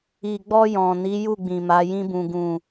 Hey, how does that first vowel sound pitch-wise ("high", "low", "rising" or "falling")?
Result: low